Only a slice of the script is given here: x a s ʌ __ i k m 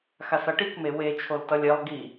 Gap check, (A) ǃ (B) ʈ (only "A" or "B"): B